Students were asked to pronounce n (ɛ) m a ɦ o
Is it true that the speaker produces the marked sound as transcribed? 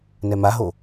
yes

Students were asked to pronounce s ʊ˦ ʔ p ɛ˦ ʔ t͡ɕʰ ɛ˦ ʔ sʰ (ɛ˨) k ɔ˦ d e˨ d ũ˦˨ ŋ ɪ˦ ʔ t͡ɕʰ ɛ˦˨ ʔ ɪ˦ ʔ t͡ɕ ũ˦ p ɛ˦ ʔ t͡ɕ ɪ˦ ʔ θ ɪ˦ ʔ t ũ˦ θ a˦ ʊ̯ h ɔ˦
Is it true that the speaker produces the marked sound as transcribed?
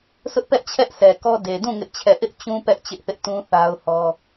yes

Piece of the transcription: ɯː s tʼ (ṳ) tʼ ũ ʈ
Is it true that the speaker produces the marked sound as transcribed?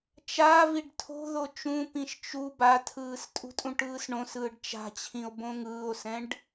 yes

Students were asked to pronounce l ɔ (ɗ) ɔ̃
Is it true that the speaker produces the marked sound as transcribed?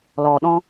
yes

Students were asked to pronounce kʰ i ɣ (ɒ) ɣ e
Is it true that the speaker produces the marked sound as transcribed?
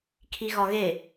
yes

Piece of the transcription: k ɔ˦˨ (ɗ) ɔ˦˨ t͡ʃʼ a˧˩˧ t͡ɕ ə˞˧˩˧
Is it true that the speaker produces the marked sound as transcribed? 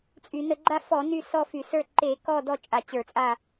no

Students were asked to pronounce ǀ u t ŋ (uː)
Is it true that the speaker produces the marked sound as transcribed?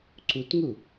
no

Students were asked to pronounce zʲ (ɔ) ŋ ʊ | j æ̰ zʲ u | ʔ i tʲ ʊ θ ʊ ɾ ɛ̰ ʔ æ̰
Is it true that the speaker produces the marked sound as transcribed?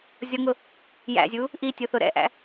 yes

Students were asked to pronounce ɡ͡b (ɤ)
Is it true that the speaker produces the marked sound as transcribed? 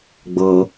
yes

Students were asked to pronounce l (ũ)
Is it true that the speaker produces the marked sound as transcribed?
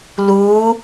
no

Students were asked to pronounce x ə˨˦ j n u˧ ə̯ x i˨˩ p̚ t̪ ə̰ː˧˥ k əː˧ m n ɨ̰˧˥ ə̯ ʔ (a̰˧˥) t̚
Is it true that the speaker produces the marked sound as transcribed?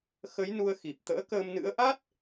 no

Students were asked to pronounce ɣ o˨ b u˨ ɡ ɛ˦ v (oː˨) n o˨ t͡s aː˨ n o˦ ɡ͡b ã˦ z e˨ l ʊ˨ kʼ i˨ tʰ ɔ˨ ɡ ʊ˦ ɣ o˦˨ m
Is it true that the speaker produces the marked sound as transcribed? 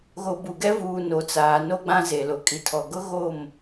no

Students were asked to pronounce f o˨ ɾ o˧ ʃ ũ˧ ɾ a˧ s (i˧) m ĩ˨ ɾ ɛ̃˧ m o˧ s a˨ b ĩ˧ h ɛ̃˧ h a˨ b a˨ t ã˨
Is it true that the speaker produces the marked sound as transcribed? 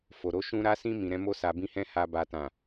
no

